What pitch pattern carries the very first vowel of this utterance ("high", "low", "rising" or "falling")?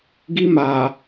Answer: high